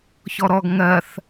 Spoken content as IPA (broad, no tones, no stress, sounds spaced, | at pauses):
ç ɔ ɾ ɔ ɡ ŋ ɜ θ